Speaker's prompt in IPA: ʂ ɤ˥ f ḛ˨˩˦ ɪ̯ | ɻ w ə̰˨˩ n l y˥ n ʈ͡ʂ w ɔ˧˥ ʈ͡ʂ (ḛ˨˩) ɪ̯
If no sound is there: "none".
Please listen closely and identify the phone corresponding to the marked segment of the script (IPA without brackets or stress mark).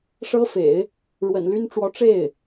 e˥˩